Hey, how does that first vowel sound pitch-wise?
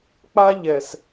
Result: high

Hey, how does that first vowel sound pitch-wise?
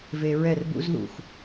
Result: low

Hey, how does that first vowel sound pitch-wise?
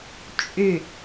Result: falling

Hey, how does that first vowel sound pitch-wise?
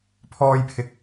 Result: high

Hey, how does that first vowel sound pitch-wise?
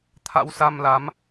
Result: rising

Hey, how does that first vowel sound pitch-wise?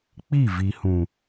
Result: falling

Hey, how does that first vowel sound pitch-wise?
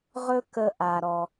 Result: high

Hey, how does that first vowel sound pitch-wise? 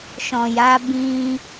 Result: low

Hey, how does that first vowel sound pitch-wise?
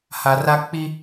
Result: low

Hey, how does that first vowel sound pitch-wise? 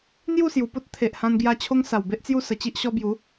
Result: falling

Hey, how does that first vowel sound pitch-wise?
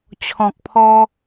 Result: low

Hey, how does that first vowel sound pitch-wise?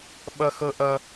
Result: high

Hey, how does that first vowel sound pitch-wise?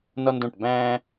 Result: high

